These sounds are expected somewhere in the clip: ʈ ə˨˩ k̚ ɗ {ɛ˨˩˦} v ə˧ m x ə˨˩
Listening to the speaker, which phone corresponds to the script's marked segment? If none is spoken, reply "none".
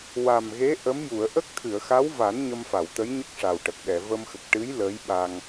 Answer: ɛ˨˩˨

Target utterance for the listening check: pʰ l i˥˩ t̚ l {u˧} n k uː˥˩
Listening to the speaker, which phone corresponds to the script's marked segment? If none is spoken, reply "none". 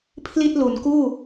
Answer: u˩˦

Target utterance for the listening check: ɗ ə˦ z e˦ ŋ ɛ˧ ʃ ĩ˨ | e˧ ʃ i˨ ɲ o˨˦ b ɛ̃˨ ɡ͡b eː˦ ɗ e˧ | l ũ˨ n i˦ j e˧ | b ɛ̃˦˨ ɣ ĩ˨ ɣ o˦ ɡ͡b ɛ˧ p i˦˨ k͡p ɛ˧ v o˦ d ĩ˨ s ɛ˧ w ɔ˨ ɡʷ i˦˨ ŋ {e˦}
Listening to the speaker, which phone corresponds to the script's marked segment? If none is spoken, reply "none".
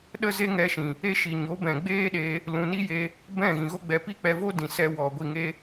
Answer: e˦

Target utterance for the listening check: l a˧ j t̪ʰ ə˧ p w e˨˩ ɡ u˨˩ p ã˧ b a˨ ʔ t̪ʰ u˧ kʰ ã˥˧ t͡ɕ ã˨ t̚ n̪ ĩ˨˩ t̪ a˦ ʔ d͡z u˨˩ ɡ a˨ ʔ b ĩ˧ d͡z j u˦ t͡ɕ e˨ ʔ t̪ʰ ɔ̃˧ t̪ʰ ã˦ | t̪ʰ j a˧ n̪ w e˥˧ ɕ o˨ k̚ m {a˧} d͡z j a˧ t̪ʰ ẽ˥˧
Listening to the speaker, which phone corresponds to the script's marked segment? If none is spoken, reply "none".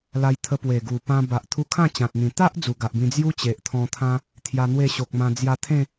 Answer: ã˧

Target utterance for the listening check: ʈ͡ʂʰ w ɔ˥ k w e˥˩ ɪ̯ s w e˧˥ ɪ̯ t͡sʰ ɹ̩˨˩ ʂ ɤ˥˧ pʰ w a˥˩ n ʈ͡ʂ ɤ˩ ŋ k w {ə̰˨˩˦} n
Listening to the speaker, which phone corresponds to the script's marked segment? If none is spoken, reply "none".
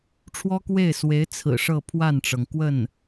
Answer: ə˥˩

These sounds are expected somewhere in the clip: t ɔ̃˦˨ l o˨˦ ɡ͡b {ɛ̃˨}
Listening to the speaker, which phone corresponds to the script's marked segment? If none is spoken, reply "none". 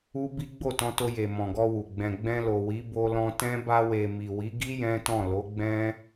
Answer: ɛ̃˦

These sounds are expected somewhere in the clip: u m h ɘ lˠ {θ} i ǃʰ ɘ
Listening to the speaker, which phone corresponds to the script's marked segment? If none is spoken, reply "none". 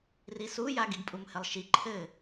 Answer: ʃ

